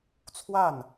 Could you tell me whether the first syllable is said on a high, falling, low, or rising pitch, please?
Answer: falling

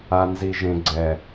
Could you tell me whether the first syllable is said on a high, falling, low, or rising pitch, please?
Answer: low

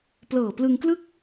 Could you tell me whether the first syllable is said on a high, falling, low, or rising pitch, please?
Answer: low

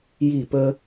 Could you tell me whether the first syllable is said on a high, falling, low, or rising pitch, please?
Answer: falling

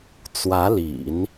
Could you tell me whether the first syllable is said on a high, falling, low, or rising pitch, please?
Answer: rising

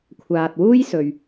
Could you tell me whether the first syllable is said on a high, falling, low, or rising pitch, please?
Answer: low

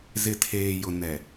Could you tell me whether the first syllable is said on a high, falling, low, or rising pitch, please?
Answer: low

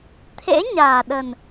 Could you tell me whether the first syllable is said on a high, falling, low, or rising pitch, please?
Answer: rising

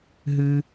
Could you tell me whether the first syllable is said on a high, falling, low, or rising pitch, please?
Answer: high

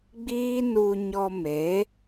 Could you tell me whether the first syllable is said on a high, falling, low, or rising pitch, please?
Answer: high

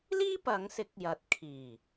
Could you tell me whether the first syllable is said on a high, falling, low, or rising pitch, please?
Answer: high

